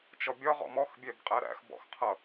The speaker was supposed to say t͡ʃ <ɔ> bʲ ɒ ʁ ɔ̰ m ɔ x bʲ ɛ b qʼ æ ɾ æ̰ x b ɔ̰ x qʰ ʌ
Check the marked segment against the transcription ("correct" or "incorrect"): correct